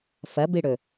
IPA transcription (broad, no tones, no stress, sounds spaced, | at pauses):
f ɐ b i ɽ ɵ